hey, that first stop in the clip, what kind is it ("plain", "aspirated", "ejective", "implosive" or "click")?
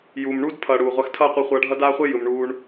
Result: plain